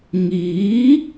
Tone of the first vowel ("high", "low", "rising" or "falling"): rising